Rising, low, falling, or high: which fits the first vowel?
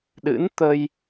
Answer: rising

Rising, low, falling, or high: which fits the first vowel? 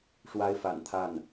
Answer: high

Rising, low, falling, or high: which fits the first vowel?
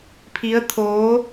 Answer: rising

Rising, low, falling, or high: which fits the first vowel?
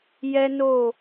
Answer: high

